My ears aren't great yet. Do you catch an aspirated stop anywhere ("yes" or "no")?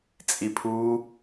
yes